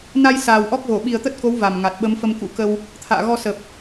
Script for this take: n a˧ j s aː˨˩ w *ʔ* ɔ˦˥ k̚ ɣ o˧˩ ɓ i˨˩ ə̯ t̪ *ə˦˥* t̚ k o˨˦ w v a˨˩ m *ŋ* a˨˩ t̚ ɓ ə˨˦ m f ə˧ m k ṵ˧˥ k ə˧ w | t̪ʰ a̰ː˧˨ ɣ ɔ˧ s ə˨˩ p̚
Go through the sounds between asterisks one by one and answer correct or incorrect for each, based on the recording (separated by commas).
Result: correct, correct, correct